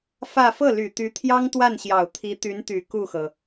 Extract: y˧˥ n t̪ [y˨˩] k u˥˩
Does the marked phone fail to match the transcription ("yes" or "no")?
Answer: no